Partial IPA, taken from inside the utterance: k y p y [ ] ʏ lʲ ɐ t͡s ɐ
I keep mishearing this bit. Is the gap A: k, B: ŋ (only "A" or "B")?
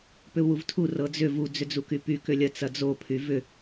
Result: A